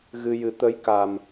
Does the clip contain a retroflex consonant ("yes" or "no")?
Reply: no